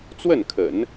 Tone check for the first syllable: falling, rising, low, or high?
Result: falling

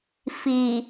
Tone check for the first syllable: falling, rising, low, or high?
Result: low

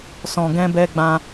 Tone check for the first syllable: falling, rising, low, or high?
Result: low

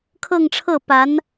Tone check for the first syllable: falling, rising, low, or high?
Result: falling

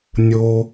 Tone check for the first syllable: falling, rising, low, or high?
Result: low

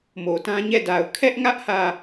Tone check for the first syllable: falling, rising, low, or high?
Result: low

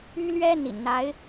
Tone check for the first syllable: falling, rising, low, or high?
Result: high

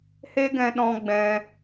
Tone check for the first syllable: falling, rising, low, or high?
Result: high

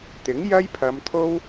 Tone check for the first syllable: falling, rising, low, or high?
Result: rising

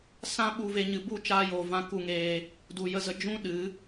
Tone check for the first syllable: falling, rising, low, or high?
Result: high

